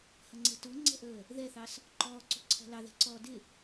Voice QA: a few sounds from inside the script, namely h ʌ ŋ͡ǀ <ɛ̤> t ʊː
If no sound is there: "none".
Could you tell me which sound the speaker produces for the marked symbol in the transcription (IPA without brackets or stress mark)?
ɛ̤